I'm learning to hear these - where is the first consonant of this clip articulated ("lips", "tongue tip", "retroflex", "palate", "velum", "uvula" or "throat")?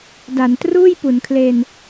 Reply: tongue tip